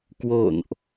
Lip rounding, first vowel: rounded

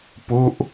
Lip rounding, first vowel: rounded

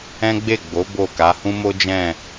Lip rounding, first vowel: unrounded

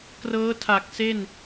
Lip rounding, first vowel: unrounded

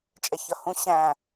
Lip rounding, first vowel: unrounded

